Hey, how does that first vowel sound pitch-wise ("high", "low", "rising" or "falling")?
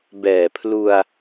low